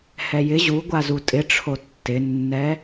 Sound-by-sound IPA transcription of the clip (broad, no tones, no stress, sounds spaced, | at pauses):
h ɛ j ɪ ʑ u ɡʷ a z u tʼ ɪ ʈ͡ʂʰ o tː ɪ nː ɛ